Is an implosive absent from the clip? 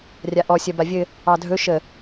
yes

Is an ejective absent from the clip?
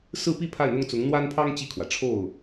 yes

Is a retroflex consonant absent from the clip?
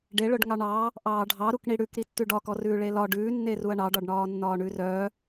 no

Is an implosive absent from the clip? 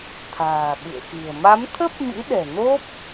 no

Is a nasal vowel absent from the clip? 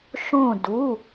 no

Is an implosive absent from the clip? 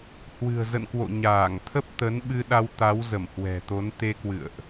no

